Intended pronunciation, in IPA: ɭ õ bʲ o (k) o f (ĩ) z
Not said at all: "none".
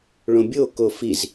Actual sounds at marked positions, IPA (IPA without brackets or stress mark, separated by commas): k, i